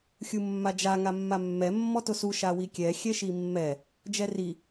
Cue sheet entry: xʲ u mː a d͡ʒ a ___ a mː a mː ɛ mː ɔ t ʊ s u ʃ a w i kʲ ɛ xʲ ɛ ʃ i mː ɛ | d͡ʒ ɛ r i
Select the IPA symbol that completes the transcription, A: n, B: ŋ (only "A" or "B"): B